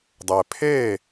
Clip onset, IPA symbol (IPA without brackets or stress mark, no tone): dˤ